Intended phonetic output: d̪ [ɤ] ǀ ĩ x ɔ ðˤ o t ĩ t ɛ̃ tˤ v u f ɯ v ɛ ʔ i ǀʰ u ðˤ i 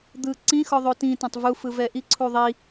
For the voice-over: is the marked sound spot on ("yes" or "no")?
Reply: no